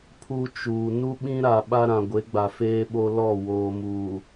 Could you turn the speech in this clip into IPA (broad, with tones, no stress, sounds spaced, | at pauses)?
pʰ u˦ t͡ʃ uː˨ n u˦ ɓ ĩ˦ ɾ a˨ ɓ a˦ ɾ ã˨ ɡʷ e˨˦ ɡ͡b a˨ f eː˦ ɓ o˦ l ɔ˦˨ w oː˨ m uː˨